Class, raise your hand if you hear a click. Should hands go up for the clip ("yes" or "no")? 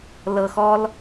no